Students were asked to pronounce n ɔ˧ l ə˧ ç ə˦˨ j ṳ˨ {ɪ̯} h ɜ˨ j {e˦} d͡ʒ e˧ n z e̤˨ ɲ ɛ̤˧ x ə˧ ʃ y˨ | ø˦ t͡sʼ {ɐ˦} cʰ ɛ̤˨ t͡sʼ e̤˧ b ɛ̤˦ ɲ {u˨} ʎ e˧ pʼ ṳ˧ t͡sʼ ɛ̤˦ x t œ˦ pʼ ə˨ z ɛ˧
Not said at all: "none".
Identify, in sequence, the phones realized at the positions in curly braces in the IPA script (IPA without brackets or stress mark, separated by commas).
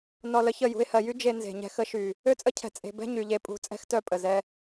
ɪ̯, y˦, ə˦, y˨